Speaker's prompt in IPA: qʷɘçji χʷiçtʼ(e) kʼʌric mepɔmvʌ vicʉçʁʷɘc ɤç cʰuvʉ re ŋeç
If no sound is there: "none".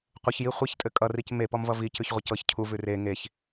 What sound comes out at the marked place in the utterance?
ɘ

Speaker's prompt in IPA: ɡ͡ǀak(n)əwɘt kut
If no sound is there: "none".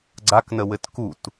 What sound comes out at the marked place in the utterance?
n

